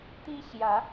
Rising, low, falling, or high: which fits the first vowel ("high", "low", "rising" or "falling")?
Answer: high